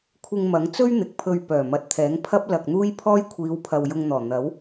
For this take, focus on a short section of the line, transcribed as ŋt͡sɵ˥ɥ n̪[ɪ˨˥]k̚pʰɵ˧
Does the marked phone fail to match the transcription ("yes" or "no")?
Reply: no